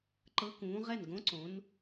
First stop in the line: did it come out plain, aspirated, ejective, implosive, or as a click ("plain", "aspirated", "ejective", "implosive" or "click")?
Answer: click